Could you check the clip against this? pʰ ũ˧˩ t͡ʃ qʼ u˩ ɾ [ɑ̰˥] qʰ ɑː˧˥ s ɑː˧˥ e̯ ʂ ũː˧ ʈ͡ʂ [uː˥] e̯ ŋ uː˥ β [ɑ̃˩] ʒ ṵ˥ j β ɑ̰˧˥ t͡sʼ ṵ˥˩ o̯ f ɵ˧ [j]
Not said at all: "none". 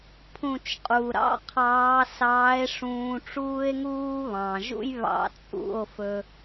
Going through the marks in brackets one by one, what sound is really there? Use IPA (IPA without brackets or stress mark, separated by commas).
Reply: ɑ̰˥, uː˥, ɑ̃˩, none